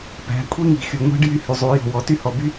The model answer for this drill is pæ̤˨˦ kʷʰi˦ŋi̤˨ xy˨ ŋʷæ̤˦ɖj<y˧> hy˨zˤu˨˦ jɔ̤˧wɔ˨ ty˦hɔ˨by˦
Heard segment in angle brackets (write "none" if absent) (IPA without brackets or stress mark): y˧